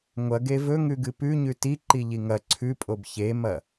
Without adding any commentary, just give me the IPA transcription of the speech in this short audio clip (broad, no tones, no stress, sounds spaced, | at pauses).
ŋʷ ɐ ɡ e v ɵ ŋ ʉ ɡ ɨ p ʉ ɲ ʉ t i ǃ i ʎ i ŋ ɐ ǀʰ ʉ pʼ o b ç e m ɐ